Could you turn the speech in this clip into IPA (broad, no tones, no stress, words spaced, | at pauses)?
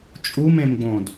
t͡ʃʼumẽmɡ͡bõd